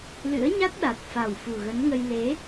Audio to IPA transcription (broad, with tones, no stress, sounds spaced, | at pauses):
l ɨ̰˧˥ ə̯ ɲ a˦˥ t̚ ɗ a˨˩ t̚ f a˨˩ w f u˨˩ ɣ ə˨˦ n ŋ ə˧ j l e˨˦